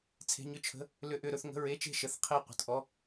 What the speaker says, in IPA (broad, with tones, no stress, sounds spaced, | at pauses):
t͡sʰ e̤˧˥˧ ɲ ʏ˥˧ t͡ʃʰ ə̤˧˥˧ | l ʏ˧˥˧ ʔ ʏ˥˧ ɾ ɵ˥˧ θ ŋ ə̤˧˥˧ ɹ e˧˥˧ t͡ʃ e̤˥˧ ʃ ə˧˥˧ θ qʰ e˥˧ qʷ ə̤˧˥˧ t ʔ ɔ˧˥˧